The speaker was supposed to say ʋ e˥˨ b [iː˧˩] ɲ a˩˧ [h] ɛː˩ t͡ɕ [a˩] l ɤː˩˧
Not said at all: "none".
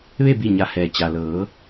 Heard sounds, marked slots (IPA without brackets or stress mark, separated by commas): i˧˩, h, a˩